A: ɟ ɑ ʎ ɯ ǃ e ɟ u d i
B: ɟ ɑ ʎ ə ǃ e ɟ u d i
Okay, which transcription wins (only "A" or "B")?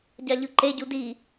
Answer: A